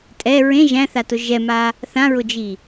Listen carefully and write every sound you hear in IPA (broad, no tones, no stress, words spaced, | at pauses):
tʼɛ ɹẽ ʒæ̃θatʊ ʒɛma | θãɹʊd͡ʒi